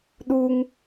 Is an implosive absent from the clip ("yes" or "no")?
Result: no